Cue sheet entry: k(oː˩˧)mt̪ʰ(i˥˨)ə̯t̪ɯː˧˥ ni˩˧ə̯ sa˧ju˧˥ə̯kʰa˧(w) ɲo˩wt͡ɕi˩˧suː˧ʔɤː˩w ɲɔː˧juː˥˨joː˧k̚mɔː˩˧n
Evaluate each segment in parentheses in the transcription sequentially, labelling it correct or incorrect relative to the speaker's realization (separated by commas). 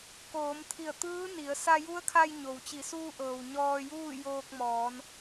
correct, incorrect, incorrect